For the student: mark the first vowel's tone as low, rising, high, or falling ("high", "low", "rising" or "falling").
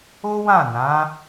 high